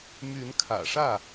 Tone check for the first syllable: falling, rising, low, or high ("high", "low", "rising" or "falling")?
rising